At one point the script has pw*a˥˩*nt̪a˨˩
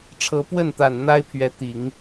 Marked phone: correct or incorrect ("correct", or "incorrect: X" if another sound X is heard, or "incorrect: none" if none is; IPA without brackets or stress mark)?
incorrect: ə˥˩